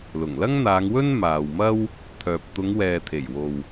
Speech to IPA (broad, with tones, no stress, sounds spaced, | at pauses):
l ʊ˨˩ ŋ l ɐ˥ ŋ n̪ aː˨˧ ŋ w ɵ˥ n m aː˨ w m ɐ˥ w | t̪ʰ œː˨ p̚ t̪ ʊ˨˧ ŋ w ɛː˨ t̪ʰ e˨˩ j w o˨ w